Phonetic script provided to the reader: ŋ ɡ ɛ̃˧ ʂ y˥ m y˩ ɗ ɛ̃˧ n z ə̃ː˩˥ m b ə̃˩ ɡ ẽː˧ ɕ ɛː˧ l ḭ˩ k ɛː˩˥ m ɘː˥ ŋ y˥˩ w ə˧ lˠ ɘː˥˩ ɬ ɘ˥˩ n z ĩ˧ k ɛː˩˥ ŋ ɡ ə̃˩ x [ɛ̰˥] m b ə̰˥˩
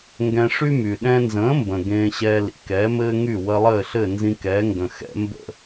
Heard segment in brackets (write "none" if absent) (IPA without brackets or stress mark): ɛ̰˥